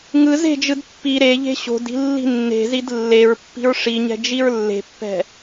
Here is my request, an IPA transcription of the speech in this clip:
ŋ ɯ z e̤ d͡ʒ ɯ d pː i ɾ e ʎ e̤ ɕ o̤ d i̤ lː i̤ nː e̤ z i d lː e ɹ pː i̤ ɹ ʂ i ɲ ɛ̤ d͡ʒ i ɹ lː e̤ pː ɛ̤

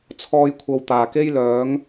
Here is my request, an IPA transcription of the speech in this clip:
t͡sʰ ɔː˧ j kʷʰ ɐ˨ w t̪ aː˨˩ k e˥ j l œː˨˥ ŋ

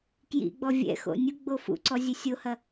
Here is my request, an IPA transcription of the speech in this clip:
k j ḭ ɡ͡b ɔ vʲ ɛ̰ x o̰ nʲ u ɡ͡b o f ṵ ǀ ɔ zʲ ɘ sʲ o h ɐ

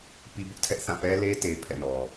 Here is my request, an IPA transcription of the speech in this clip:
p i˦ b ʊ˦ ʔ tʰ ɛ˦ ʔ θ ã˦˨ p ɛ˦ l e˦ t e˦ pʰ ɛ̰˦˨ n ɔ˨

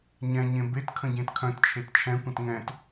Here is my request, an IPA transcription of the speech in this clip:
ɲ ɛ̃ ɲ ẽ b e t kʰ ə̃ ɟ ẽ t kʰ œ̃ t t͡ʃʰ e t t͡ʃʰ ɛ̃ kʷ ə̃ t ŋ ɛ̃ t

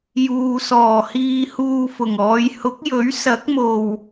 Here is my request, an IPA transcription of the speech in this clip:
j uː˨ s ɔː˨˩ h iː˧ h uː˧ f ʊ˨˩ ŋ ɔː˨˧ j h ʊ˨˥ k̚ j ɵ˨˥ ɥ s ɐ˨˥ k̚ m o˨˩ w

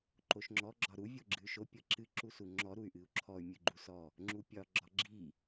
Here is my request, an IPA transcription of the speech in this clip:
ǃ o ʃ ŋ͡ǁ ɔ ɡ͡ǁ ɒ ɾ u vʲ o ɡ͡ǁ ɨ y̯ ʃ o pʲ ɤ ǁ ɨ ǁ u s u ŋ͡ǁ ɔ ɾ u y̯ ʔ ɨ u̯ ǁʰ ɔ y̯ mʲ ɨ ɡ͡ǃ u s ɔ | ŋ͡ǁ u pʲ ɒ ɡ͡ǁ ɒ ɡ͡ǁ i

